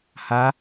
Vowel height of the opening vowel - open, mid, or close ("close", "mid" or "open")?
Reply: open